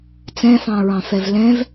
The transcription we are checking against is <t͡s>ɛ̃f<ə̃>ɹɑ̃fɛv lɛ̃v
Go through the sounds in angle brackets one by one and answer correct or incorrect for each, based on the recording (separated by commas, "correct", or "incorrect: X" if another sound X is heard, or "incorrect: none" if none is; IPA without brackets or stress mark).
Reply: correct, incorrect: ɑ̃